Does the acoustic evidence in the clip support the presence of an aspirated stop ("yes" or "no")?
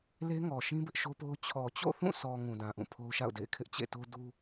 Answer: yes